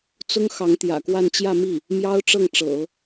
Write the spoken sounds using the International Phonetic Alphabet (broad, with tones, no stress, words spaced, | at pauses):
t͡sʊ˥ŋ xɑ˧˥ŋt̪jä̰˨˩kwa˥˧n t͡ɕjä˥˧mi˥˩ | mjɑ˥ʊ̯ʈ͡ʂɤ˥˩ŋʈ͡ʂɤ̰˨˩˦